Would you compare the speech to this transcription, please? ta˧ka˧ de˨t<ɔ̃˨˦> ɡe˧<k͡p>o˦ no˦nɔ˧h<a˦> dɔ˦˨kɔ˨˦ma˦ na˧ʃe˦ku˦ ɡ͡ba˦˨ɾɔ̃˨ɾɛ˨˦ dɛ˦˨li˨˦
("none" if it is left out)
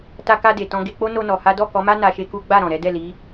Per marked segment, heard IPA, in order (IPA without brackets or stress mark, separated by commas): ɔ̃˧, k͡p, a˦